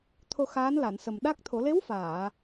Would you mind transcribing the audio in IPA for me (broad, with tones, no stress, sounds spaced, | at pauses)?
t̪ʰ o˧ x aː˧˥ n l a˨˩˨ n s ə˨˩ m ɗ a˦˥ k̚ t̪ʰ o˨˩˦ l e˧˥ w f aː˨˩˨